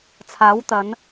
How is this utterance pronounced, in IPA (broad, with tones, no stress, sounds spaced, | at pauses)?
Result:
t͡sʰ aː˨˥ w t̪ ɐ˨˥ n